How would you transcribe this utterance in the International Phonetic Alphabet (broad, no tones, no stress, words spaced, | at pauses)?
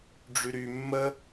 ɖ͡ʐyɾy mːə